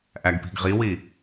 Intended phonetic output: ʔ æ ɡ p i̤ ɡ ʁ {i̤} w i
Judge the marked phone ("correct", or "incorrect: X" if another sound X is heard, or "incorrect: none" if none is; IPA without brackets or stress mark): incorrect: i